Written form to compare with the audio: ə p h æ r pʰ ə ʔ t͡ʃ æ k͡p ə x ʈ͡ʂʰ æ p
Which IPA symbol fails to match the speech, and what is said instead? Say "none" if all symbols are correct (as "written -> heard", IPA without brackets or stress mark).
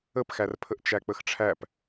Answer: h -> x